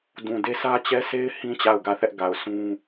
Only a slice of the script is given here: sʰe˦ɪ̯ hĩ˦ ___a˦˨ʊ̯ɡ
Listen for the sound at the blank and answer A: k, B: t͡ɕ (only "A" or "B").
B